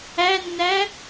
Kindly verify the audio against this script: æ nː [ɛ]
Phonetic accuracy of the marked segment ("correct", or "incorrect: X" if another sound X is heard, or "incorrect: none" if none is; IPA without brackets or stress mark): incorrect: æ